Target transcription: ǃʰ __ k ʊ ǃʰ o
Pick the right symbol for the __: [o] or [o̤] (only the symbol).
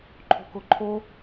o̤